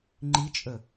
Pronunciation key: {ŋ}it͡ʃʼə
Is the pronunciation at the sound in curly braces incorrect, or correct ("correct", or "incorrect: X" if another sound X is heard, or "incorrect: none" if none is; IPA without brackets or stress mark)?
incorrect: ŋ͡ǃ